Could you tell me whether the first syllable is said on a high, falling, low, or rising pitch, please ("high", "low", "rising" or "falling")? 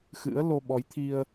rising